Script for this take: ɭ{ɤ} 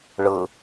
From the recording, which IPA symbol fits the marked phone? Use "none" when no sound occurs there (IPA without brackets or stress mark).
ɤ